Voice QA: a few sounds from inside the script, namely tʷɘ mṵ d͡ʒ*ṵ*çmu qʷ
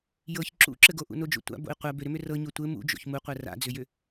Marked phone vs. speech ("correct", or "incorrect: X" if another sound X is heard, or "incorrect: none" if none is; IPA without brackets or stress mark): incorrect: o̰